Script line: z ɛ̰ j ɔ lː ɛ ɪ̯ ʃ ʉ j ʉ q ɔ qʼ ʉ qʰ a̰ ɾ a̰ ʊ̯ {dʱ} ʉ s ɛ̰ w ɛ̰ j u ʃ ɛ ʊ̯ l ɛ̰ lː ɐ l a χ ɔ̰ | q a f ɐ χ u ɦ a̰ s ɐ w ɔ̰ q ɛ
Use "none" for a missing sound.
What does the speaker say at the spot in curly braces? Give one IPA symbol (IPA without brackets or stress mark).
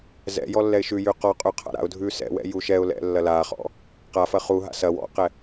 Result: dʱ